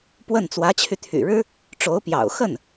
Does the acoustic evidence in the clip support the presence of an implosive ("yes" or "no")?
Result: no